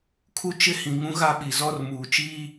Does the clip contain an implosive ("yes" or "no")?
yes